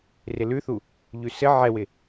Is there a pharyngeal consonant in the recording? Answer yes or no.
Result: yes